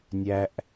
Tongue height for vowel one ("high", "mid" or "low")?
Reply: low